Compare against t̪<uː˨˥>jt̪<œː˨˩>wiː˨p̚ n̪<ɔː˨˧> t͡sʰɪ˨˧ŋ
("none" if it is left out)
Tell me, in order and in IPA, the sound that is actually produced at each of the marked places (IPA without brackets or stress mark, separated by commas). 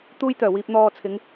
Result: uː˧, œː˨˩, ɔː˨